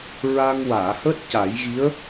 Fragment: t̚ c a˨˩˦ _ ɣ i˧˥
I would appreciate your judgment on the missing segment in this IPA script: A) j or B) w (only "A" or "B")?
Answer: A